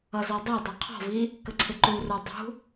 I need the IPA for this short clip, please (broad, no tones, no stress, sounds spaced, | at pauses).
ʌ z ɔ dˤ ə˞ dˤ ʌ qʰ ɔ̤ v i | k ə ǀʰ ɪ ǃ u r ə˞ dˤ ṳ